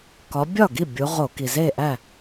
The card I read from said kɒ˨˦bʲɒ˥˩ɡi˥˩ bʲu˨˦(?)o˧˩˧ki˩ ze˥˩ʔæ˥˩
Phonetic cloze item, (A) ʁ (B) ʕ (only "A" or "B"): A